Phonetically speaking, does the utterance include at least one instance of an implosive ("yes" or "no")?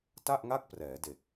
no